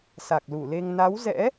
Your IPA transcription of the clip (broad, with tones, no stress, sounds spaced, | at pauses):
s a˨˩ k̚ l u˧˩ l e˧ ŋ n a˨˦ w z ɛ̰˧˥